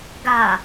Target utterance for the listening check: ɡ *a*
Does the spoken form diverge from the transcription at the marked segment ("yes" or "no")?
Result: no